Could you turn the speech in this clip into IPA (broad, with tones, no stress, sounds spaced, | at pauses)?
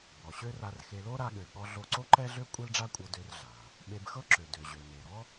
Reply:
b ɔ˩ ɕ ø˥ r a˧ r x e˧ l o˥ ɾ a˧ ɠ ø˩ ɠ ɔ˧ ɮ o˧ ǀ o˥ ǃ ɛ˥ ɮ ø˥ kʷʼ e˥ l ɖ͡ʐ a˥ kʷʼ ɤ˧ d ø˧ r ɮ a˩ | ɓ e˧ b x ɤ˥ ǁ ø˩ d ø˩ ʑ ø˩ n e˩ ɾ ɔ˥